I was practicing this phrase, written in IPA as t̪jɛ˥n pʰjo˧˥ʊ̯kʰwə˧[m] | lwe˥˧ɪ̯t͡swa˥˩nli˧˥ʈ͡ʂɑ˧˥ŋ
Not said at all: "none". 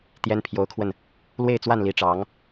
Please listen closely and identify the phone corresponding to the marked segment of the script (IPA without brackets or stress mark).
n